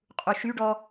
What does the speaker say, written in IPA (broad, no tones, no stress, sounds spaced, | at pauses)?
qʼ u ʃ y ɖ ɔ